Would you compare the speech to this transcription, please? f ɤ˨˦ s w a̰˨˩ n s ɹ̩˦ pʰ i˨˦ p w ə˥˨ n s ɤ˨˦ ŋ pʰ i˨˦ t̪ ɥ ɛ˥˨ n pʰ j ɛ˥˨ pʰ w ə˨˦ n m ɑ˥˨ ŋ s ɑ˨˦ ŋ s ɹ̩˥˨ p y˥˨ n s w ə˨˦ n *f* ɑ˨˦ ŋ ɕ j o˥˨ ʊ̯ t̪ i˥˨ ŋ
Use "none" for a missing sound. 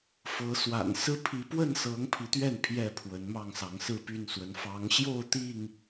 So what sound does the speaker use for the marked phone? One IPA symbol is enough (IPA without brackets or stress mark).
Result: f